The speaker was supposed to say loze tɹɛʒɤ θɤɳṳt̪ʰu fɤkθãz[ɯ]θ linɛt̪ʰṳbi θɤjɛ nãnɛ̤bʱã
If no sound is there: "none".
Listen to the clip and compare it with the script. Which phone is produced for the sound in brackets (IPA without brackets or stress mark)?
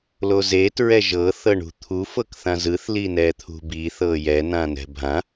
ɯ